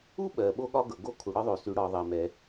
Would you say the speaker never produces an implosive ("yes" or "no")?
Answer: no